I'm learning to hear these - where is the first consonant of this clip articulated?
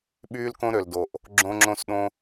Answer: lips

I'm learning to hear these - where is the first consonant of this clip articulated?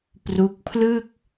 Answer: lips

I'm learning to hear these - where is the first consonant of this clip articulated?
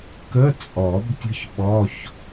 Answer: velum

